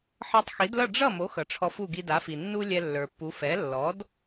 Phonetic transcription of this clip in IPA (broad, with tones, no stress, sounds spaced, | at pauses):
ħ ʌ˧ tˤ x i˩˥ d l ʌ˥˩ ɖ͡ʐ ʌ˥˩ m o˩˥ x ʌ˩ ʈ͡ʂʰ ɔ˧ f u˥˩ ɡ i˧ d a˩˥ f i˩ nː u˥ lʲ ɛ˧ lː ə˞˩ pː u˩˥ f ɛ˩˥ lː ɔ˩˥ d